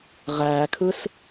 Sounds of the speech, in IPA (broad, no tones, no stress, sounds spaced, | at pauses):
ʁ æː kʰ ɯ s